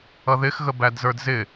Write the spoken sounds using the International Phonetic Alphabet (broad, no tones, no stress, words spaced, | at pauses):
ʌðɪxɣə bædzə˞dzɪ